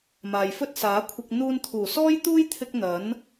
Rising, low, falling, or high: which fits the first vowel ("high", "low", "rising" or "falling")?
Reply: low